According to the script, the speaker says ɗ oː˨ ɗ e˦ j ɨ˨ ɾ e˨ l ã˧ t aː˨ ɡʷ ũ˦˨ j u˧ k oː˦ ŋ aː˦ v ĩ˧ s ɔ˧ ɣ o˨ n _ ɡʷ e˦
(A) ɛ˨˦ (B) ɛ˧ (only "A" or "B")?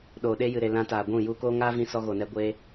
B